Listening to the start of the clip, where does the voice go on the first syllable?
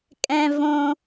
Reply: high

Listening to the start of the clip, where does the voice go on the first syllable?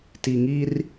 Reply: low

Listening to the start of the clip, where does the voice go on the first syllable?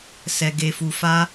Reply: low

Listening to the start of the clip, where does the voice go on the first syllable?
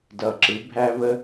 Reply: low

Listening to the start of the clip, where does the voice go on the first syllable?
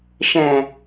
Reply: low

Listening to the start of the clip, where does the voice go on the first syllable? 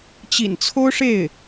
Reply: low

